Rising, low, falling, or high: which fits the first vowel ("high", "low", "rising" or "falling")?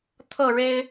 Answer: falling